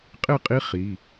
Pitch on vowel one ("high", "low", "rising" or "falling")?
falling